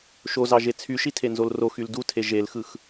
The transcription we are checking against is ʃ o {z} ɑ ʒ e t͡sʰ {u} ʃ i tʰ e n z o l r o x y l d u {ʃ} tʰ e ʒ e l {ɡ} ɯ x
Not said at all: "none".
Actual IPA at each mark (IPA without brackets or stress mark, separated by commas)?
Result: z, y, none, x